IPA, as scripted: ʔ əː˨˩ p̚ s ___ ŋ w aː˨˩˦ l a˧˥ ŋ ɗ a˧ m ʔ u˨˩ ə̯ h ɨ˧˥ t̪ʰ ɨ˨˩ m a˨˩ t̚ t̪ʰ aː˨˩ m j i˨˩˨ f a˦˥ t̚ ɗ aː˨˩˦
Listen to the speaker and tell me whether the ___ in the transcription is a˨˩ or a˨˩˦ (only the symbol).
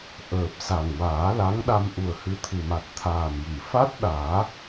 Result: a˨˩